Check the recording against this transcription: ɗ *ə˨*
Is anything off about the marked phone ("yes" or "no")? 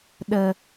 no